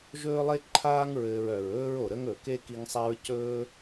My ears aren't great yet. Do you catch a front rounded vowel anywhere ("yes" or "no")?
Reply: yes